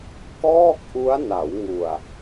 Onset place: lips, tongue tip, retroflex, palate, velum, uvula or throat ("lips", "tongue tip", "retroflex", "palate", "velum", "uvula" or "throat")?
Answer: velum